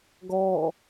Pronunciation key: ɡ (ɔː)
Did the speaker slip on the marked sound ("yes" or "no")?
no